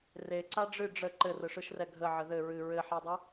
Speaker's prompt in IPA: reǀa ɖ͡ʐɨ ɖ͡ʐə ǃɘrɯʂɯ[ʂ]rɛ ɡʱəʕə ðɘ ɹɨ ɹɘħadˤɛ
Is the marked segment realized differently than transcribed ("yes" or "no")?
yes